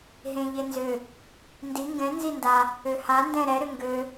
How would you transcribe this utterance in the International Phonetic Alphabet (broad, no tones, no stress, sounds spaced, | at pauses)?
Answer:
ɦ ẽ ʎ e n z ʏ | n d i ŋ ɡ ɛ̃ n z i n d a | ø h a n d ɛ̃ ɾ ɛ ɾ ʏ ŋ ɡ ø